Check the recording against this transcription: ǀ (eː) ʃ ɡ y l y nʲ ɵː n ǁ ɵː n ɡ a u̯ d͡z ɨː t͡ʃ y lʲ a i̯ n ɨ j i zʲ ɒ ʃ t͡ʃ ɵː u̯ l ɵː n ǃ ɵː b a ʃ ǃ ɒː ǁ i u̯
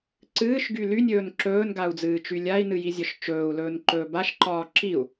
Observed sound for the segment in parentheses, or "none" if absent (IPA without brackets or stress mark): ɨː